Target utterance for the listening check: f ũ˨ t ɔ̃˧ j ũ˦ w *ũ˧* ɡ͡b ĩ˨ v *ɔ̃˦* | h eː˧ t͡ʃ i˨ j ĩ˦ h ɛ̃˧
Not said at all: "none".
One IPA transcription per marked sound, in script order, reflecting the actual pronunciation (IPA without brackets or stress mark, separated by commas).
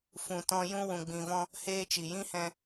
ũ˨, ɔ̃˧